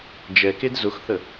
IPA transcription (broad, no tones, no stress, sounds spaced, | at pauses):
d͡ʒ ɛ k e d z ʊ x θ ə